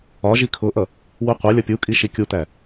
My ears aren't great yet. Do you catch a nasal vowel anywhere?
no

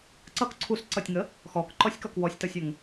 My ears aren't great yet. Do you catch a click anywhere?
yes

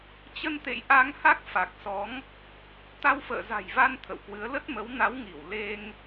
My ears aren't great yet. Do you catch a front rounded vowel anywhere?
no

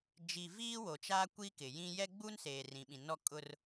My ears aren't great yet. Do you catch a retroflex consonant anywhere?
no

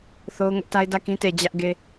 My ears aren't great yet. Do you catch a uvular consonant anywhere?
no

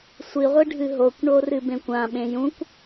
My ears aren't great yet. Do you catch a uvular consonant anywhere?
yes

